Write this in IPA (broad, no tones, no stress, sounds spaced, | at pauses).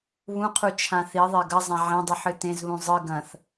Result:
β ũ qʰ u t͡ʃʰ ã θ i ðˤ e ɡ ɐ zˤ ã ʕ ẽ dˤ ɨ ħ ɨ t ẽ z β ũ zˤ ɨ ɡ ɐ̃ θ